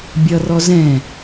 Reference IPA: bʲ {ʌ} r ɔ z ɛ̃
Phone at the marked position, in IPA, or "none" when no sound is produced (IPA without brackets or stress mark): ʌ